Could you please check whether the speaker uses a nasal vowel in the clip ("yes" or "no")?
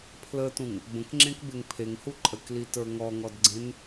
yes